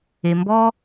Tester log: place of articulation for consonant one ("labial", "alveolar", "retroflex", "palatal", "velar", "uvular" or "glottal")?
labial